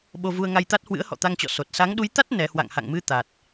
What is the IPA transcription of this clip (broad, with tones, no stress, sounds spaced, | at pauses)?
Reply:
ɓ o˧ v u˧ ə̯ ŋ a˧ j t̪ a˦˥ t̚ h w ɨ̰˧˥ ə̯ h ɔ̰˧˨ t̪ a˧ ŋ t͡ɕ ɔ̰˧˨ s o˨˩ t̚ s a˨˦ ŋ ɗ u˨˦ j t̪ a˦˥ t̚ n ɛ˨˦ h w a̰˧˨ ŋ h a̰˧˨ ŋ m ɨ˧ t̪ a˨˩ t̚